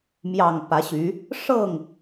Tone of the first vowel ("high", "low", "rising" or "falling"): low